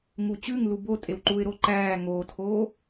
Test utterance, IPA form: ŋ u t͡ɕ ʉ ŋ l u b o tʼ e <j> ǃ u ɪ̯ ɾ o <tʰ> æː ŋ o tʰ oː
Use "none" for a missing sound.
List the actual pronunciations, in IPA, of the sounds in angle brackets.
w, ǃ

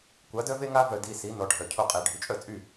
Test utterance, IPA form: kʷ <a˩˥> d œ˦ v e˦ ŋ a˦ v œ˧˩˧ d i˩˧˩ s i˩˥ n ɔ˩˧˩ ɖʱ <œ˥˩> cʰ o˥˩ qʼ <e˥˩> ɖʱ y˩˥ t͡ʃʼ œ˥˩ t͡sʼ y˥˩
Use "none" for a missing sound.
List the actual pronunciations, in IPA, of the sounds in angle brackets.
a˩˥, œ˧˩˧, e˧˩˧

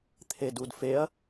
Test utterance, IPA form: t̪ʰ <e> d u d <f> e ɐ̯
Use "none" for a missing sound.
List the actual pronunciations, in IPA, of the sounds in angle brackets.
e, f

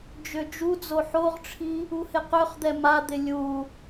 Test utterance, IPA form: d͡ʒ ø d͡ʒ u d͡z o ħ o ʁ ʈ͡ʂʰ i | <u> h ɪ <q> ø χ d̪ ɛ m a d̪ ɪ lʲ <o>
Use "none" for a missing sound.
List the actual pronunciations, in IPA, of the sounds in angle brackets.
u, q, u

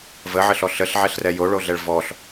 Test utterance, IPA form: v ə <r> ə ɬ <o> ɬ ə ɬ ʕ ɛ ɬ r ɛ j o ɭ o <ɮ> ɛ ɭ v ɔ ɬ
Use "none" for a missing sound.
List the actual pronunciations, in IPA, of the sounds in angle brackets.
ʕ, ɔ, ɮ

